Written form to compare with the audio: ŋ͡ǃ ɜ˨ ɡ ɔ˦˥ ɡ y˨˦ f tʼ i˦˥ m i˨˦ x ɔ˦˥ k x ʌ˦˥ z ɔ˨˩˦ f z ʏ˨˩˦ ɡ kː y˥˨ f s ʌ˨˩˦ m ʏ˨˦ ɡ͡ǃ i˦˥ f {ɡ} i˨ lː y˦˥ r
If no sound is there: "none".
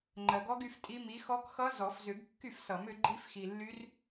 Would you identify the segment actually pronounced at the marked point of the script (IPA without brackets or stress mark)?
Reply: x